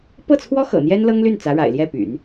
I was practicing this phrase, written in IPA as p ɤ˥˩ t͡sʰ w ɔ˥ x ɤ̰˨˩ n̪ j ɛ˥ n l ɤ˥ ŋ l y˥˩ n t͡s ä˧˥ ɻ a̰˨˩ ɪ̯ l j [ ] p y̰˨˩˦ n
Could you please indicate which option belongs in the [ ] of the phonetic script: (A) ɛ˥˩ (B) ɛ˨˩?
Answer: A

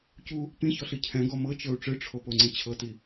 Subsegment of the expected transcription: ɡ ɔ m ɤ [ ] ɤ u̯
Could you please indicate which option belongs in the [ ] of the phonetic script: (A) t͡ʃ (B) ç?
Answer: A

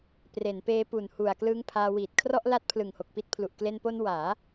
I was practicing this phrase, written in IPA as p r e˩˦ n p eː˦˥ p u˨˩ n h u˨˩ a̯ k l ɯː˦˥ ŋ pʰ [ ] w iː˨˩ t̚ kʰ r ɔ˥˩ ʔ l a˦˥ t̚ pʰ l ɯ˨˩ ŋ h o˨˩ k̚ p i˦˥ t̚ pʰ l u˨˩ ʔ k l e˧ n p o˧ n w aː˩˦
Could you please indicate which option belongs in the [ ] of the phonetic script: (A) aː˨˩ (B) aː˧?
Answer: B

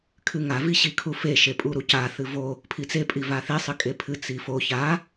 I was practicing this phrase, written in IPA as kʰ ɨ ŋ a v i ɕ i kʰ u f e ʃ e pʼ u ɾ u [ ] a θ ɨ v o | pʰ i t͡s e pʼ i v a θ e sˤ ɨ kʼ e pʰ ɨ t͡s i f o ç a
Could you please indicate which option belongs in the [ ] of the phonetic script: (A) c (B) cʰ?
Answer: A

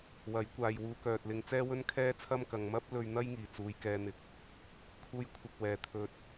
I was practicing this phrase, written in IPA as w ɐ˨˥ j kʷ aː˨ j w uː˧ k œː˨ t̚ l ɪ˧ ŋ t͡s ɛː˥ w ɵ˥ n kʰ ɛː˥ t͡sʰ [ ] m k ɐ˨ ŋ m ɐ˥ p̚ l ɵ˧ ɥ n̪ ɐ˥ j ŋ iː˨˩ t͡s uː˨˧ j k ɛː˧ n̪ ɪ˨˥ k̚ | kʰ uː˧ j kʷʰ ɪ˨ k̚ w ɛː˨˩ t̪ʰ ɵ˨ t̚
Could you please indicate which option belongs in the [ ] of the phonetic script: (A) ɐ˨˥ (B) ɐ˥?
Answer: B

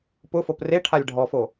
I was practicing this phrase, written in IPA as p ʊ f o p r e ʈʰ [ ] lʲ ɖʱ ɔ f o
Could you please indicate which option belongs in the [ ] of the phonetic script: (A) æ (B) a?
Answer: B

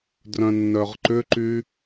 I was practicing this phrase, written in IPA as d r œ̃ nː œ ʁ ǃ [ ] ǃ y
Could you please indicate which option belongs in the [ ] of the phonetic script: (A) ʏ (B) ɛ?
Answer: A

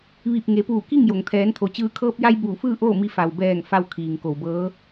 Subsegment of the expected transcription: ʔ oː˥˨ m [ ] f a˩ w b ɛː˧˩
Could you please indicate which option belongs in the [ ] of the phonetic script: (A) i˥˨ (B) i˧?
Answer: B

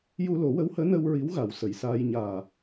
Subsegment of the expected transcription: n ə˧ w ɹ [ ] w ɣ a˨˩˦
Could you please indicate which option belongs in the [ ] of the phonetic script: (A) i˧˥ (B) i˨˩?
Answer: A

